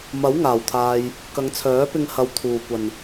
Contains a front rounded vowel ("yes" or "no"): yes